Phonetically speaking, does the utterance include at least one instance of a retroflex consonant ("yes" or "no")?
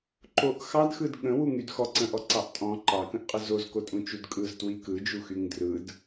no